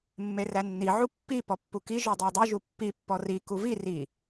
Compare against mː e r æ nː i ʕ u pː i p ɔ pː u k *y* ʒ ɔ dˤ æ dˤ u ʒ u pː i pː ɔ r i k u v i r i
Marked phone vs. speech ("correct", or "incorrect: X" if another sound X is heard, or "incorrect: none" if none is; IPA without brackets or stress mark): incorrect: i